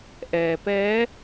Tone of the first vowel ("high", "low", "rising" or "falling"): low